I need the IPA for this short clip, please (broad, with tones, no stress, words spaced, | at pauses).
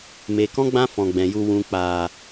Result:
meː˨kɔ̃˦ ɡ͡bã˦fɔ̃˨ɡ͡bɛ̃˨ju˧ wũ˨k͡paː˨